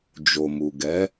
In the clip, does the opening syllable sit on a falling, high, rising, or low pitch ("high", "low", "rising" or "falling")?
low